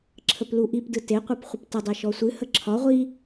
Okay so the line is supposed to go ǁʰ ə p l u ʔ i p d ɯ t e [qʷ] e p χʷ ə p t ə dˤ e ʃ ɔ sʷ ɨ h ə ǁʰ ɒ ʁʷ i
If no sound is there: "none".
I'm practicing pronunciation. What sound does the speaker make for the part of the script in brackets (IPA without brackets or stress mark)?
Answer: qʷ